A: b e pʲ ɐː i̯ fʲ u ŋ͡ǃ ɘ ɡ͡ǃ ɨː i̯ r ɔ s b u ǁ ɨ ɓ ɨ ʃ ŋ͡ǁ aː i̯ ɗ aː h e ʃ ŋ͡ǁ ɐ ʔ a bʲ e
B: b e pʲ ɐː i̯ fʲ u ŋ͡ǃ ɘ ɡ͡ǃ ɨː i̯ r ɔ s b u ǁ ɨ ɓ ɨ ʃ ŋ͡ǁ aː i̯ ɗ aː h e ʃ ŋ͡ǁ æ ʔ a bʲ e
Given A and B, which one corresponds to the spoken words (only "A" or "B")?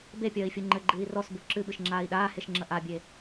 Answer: A